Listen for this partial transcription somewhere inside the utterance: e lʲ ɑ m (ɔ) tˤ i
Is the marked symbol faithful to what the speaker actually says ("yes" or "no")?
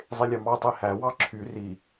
no